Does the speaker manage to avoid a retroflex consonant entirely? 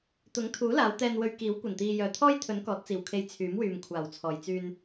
yes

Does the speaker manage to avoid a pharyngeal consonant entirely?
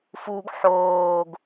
no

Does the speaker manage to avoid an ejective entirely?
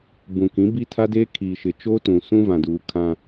yes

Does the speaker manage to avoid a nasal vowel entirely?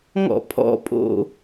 yes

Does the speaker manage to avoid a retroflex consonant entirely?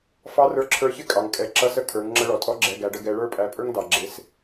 no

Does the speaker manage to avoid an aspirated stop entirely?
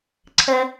no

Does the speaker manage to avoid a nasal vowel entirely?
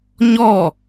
yes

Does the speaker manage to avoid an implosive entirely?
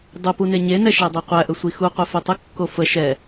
yes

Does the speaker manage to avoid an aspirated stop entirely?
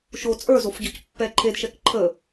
no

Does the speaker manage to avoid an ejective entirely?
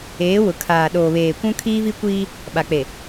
yes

